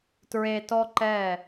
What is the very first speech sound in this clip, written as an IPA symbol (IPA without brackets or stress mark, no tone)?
t